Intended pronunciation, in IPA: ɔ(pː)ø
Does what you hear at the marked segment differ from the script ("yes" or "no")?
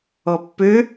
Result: no